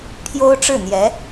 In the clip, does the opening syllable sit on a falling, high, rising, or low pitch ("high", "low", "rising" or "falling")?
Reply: high